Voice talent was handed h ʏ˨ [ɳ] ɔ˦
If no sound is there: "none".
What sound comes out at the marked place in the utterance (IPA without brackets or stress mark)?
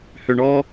ɳ